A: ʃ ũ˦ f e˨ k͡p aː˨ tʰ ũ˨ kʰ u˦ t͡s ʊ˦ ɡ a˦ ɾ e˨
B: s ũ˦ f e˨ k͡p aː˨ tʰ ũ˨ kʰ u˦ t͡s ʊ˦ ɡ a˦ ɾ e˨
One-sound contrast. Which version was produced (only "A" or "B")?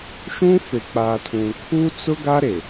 A